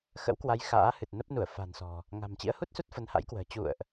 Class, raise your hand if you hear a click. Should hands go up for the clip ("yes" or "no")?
no